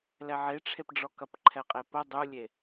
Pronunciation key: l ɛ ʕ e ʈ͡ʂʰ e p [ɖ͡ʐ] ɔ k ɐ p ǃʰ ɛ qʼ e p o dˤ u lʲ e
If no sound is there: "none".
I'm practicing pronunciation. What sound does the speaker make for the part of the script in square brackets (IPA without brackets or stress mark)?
ɖ͡ʐ